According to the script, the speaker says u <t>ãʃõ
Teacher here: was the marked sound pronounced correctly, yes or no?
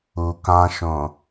no